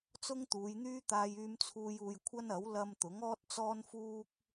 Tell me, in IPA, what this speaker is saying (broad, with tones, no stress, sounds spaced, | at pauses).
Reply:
t͡s ʊ˥ ŋ t̪ uː˨˧ j n̪ yː˥ t̪ aː˥ j yː˥ m t͡sʰ uː˥ j uː˧ j kʷʰ ɐ˥ n ɐ˨˥ w l ɐ˥ m t̪ ʊ˨˥ ŋ ɔː˥ t̚ t͡s ɔː˥ n f uː˥ k̚